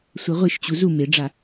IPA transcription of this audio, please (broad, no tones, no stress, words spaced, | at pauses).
sʷɤʁʷiʃt͡ɕu zu meɖ͡ʐa